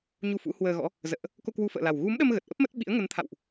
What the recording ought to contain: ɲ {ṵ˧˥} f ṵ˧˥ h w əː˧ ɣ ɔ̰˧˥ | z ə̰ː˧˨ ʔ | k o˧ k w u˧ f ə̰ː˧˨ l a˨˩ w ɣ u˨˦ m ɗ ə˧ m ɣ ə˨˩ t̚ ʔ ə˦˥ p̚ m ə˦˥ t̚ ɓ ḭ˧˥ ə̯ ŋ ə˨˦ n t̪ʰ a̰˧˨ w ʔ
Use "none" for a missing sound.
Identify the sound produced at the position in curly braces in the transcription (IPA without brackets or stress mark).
u˧